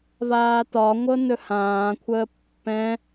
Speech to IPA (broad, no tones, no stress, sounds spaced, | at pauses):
v aː t ɒ ŋʷ ɤ n ɵ h ãː kʷʰ əː pː ɛ̃